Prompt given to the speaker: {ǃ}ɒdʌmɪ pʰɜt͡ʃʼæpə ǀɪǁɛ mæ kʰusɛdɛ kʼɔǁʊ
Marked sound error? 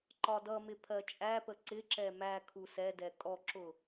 no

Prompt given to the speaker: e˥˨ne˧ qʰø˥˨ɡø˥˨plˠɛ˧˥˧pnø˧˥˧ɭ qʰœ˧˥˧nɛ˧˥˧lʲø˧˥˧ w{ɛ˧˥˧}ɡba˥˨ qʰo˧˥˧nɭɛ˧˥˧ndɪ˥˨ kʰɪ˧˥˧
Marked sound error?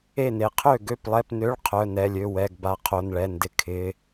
no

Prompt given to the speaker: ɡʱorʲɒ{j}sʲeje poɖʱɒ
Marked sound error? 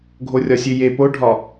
yes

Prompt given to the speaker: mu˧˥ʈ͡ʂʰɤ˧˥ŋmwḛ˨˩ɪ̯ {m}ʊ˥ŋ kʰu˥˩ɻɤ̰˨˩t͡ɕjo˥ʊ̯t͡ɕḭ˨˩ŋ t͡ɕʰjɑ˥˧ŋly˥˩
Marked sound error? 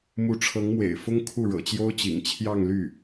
yes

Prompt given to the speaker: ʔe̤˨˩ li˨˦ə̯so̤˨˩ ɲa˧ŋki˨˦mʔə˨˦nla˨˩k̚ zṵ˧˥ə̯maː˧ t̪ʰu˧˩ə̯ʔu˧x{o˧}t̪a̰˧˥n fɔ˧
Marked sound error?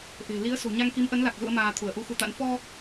yes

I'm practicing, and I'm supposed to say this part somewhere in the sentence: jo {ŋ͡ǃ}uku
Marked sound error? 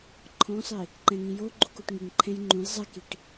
yes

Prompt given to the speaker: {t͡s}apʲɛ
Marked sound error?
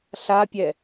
yes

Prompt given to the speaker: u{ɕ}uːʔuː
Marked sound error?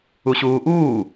no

